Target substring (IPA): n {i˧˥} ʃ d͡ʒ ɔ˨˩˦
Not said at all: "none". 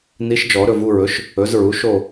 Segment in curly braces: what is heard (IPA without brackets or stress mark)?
i˧˥